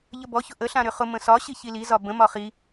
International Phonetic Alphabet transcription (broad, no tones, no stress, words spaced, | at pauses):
ʎəbɔçʊ ʔəɬã ɾʏχʊ mə̃sɒ ɕiçilizɒ bə̃mɒ χi